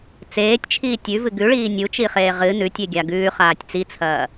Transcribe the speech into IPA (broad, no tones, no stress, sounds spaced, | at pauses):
t͡s eː tʲ t͡ʃʰ iː tʲ ʉ v ɨ ɡ ʉ ɭ iː nʲ u t͡ʃ i χ eː ʁ ɨ n ʉ tʲ e ɡʲ a ɡ ʉː χ aː tʲ t͡s i t͡sʰ ɐː